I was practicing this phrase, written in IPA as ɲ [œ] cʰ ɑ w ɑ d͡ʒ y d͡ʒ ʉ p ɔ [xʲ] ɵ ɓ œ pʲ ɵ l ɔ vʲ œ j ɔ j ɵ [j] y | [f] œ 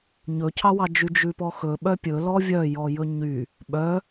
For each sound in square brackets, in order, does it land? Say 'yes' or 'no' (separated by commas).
no, no, no, no